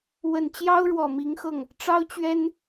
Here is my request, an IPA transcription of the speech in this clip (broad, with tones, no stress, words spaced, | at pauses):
wə˨˩nt͡ɕjɑ˥ʊ̯ ɻwɔ˨˩mi˧˥ŋxɤ˥˩ŋ | ʈ͡ʂɑ˥ʊ̯t͡ɕɥɛ˥n